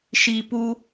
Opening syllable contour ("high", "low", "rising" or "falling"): low